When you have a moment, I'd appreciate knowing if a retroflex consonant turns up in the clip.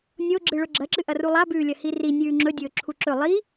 yes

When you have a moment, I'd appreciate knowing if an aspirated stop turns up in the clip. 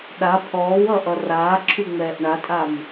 yes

